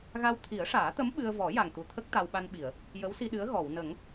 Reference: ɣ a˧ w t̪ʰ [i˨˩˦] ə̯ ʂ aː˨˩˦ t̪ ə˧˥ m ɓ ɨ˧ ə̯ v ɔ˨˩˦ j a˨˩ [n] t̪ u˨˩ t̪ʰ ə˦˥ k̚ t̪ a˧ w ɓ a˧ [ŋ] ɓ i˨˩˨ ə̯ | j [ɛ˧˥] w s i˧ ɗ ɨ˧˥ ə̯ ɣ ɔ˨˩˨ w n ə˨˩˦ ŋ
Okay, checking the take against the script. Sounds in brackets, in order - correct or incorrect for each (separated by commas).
correct, incorrect, incorrect, incorrect